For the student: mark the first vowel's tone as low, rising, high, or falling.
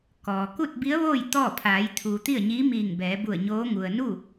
low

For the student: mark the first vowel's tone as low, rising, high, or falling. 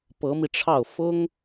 rising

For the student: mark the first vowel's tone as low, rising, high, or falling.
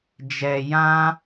low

